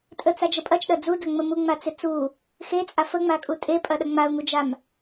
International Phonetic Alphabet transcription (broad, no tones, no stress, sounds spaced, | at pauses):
tʼ ə t͡s a d͡ʒ ə pʼ ɐ t͡ʃ ɗ ɐ d͡z u d ɐ ŋ͡m ə m u ŋ͡m a t͡s ɪ t͡s u | x e t͡sʼ a f ə ŋ͡m a kʼ u tʼ e pʼ ɐ ɗ ɐ ŋ͡m a ʊ̯ ŋ u d͡ʒ a m